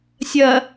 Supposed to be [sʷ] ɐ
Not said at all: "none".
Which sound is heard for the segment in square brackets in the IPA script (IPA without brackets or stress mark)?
sʲ